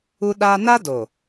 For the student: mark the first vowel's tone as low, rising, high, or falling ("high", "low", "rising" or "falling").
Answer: high